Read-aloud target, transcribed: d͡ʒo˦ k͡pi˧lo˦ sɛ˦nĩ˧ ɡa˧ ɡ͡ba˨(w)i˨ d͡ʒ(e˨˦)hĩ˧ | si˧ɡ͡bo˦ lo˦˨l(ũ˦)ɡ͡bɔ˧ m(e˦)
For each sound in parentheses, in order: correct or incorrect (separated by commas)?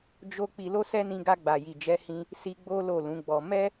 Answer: incorrect, incorrect, incorrect, incorrect